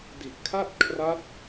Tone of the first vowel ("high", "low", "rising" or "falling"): low